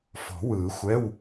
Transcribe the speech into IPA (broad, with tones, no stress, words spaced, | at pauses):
fɔ̤˨˩˦wɯː˨˩˦ xʷɛ˧˥˧w